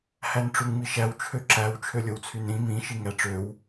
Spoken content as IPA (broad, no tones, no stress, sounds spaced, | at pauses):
h æ n ʈ͡ʂ u ŋ m i ʃ æ w t͡ʃʰ ø ǁ æ w t͡ʃʰ ø lʲ o w t͡sʰ y n ɾ ĩ m ĩ ʃ i ŋ æ ʈ͡ʂ ø w